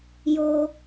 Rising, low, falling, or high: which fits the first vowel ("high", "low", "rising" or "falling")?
high